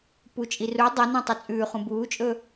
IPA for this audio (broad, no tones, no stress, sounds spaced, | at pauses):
p u t͡ʃʼ i r u dˤ o n ũ tˤ œ t͡sʼ ʉː χ ũ b uː t͡ʃʼ ɵ